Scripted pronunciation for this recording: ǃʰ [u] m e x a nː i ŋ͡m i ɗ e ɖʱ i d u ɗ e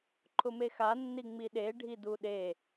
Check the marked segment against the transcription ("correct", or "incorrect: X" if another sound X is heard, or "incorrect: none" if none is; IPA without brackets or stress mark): incorrect: ʊ